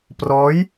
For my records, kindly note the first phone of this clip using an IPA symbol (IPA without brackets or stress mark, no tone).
p